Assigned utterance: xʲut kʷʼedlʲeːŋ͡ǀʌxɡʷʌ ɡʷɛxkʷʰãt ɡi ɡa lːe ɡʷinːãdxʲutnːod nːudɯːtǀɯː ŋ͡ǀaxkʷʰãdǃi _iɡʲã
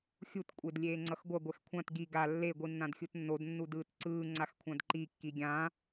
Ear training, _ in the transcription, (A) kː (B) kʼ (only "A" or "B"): A